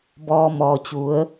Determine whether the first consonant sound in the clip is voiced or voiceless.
voiced